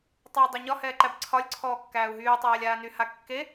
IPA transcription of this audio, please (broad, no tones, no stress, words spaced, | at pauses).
tˤæu̯dˤaɲɒ hɛːǃæbǀʰɒlʲ ǀʰɔːkːæːu̯ɦyː tˤæːlʲaːny hakːe